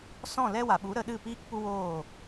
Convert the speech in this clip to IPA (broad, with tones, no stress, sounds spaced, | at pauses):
s ɔ̃˦˨ l ɛ˦ w a˨ ɓ u˨˦ ɾ ə˧ ɗ ɨ˦˨ p iː˦ k p u˦ w oː˦˨